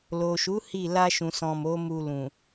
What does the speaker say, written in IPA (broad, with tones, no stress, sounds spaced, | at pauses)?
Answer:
l o˨ ʃ u˨˦ h i˦˨ l a˧ ʃ ũ˨ s ɔ̃˨ m o˨˦ m u˧ l ũ˨